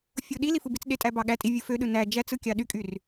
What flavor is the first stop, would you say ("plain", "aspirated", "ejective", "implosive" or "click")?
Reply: implosive